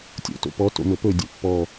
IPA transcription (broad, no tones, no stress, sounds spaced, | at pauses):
tʲ o̰ t o̰ p ɔ t o̰ m ɵ p ɵ dʲ ɵ pː ɔ